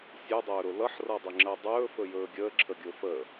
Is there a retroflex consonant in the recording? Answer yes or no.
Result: no